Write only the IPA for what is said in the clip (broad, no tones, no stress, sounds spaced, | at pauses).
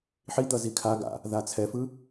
ħ i d̪ ʌ z i kʰ a ɡ a̰ | ð a t͡sʰ ɛ f ɯ